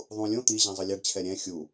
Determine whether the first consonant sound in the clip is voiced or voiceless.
voiced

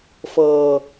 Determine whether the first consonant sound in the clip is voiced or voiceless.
voiceless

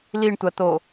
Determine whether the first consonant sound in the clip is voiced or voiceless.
voiced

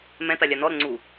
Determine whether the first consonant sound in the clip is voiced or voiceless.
voiced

